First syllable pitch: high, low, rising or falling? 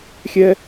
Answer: high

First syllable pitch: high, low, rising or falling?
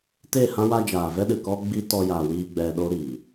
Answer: falling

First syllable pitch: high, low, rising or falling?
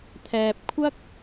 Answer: low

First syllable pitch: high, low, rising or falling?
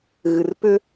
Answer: low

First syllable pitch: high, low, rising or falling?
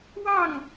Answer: falling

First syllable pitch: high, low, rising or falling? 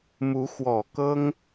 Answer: rising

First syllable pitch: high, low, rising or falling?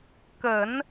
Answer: low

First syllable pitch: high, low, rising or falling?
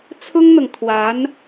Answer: high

